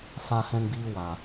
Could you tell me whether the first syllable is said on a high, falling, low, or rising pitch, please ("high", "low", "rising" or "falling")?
high